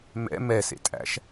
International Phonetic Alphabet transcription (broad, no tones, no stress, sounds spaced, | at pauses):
m ɛ̰ m ɛ s ḛ tʼ æ̰ ʃ